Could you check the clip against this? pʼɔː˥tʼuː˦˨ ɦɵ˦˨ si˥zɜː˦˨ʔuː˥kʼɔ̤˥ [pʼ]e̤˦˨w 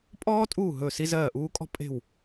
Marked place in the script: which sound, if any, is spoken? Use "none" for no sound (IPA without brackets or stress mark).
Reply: pʼ